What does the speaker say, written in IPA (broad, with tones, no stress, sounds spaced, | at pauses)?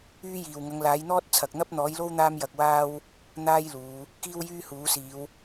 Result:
yː˥ j iː˨ w ŋ ɐ˨˧ ŋ l aː˨˥ j n̪ ɔː˥ t̚ t͡sʰ ɐ˨ k̚ n̪ ɐ˥ p̚ n̪ ɔː˨˥ j l o˥ w n̪ aː˥ m j ɐ˧ k̚ w aː˥ w | n̪ aː˥ j l uː˨˧ | k iː˥ w j yː˥ h uː˨˥ s iː˨˧ w